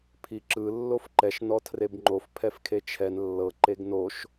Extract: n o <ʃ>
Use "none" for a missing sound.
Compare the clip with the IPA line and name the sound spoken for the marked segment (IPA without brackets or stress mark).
ʃ